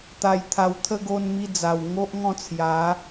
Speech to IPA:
t̪ a˧ j t̪ʰ a˧ w t̪ʰ ə˦ ɡ o˧ n m i˧ d͡z a˨˩ w ŋ o˦ ʔ ŋ ɔ̃˥˧ t͡sʰ j a˨˦

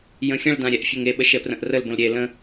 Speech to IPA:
j ə̃ xʲ ə̃ ɭ d ã ɾʲ ɛ ʔ fʲ e ŋ e ɓ ə ʃ ɛ p r ə̃ ʔ r ə l b ə̃ l ɾʲ e l ə̃

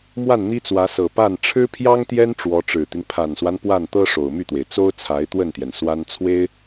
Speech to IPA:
m w a˥˩ n n̪ i˥ t͡s w ä˧˥ s ɤ˨˩ p a˥˩ n ʈ͡ʂʰ ɻ̩˥ pʰ j ɑ˥ ŋ t̪ j ɛ˥ n ʈ͡ʂ w ɔ˧˥ ʈ͡ʂ ɻ̩˨˩ t̪ i˦ n pʰ a˨˩ n s w a˦ n p w a˥˩ n t̪ ɤ˥ ʂ o˨˩ ʊ̯ m y˥˩ t̪ w e˩ ɪ̯ t͡s o˥ ʊ̯ t͡sʰ a˧˥ ɪ̯ t̪ w ə˥˩ n t̪ j ɛ˩ n s w a˥ n t͡sʰ w e˥ ɪ̯

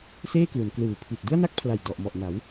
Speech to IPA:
s eː˥˩ k l u˩˦ n k l ɯː˨˩ pʰ i˨˩ t̚ d ɯ˥˩ a̯ n a˥˩ k̚ pʰ l a˨˩ j d ɔ˨˩ ʔ m ɔ˨˩ ʔ n a˩˦ w

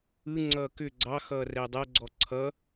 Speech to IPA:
ɯ ŋ͡ǀ ʌː k ʏ ɡ͡ǀ ɑ x ʌː r ɛ dˤ ʌ ɡ͡ǀ ɔ ǀʰ ʌ

